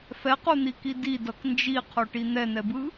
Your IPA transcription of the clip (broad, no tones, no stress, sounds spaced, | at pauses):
f ɛ q u n̪ i k i d i d ʌ k n d͡ʒ i qʰ o ʈ i n̪ ɛ n̪ ɛ b ɯ